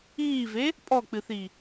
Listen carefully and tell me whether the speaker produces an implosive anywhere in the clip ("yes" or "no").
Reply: no